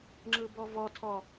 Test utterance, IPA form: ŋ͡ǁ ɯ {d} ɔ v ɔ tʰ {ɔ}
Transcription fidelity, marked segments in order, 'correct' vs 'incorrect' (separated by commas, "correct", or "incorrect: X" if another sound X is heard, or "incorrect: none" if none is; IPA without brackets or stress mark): incorrect: b, correct